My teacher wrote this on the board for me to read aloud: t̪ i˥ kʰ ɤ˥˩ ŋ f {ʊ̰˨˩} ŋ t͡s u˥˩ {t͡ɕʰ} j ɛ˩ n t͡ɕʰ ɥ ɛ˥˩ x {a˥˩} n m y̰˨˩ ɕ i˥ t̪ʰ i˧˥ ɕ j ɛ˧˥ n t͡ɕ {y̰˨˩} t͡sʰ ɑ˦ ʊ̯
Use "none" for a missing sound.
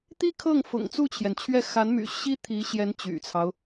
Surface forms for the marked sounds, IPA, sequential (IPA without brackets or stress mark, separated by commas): ʊ̰˨˩, t͡ɕʰ, a˧˥, y̰˨˩